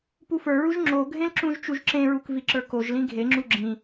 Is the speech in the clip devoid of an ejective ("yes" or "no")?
yes